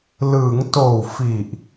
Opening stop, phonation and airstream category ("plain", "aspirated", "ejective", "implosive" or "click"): plain